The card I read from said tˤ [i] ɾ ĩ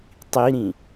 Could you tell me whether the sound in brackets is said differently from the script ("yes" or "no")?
no